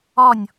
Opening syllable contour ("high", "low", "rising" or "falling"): falling